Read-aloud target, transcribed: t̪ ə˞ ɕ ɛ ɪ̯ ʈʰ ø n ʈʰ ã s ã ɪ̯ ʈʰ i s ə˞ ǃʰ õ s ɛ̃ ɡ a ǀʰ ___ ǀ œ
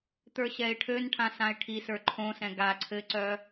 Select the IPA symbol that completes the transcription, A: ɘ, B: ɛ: A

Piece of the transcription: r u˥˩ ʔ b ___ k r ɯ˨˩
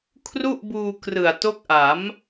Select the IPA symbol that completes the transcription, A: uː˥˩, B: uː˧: B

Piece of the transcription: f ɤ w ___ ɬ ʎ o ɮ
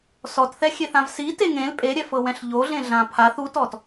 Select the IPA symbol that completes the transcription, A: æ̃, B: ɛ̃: B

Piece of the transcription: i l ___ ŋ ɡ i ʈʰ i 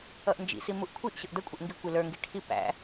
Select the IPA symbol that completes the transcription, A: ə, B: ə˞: B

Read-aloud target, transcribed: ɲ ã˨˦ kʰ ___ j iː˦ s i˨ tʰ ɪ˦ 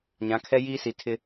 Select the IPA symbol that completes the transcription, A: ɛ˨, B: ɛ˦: B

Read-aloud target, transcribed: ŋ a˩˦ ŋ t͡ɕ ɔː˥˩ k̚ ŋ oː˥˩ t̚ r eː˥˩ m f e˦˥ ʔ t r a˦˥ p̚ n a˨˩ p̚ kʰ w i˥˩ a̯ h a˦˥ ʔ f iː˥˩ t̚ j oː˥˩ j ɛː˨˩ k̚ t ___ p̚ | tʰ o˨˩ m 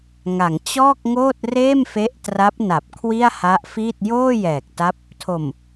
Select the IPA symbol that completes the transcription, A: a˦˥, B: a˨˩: A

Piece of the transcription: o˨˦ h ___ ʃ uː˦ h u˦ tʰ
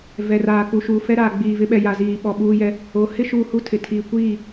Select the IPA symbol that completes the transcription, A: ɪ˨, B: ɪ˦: B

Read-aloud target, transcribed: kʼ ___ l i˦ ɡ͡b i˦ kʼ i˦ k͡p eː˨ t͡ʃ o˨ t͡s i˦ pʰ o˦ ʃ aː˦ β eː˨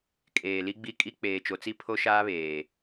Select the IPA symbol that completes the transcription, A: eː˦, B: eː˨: B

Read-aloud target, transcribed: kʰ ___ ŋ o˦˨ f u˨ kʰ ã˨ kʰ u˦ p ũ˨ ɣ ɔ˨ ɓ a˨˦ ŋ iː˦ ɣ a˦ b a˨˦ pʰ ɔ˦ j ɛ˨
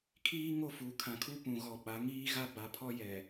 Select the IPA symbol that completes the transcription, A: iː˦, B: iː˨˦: A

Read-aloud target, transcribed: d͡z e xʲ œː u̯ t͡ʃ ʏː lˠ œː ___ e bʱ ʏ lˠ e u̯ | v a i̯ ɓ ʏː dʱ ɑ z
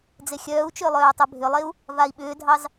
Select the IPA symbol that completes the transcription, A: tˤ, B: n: A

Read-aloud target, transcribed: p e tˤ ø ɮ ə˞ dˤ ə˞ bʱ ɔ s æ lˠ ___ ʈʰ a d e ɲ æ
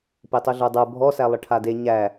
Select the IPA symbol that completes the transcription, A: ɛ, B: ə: B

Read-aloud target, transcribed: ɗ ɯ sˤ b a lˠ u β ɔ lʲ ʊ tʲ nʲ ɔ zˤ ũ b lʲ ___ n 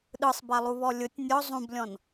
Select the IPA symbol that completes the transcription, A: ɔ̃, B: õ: A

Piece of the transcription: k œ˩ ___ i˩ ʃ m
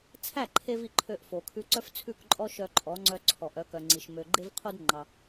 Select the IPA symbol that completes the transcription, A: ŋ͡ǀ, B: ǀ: A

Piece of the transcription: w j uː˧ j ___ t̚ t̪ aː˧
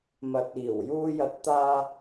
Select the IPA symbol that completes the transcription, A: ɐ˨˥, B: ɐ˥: A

